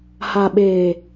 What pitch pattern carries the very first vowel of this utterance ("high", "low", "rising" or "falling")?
low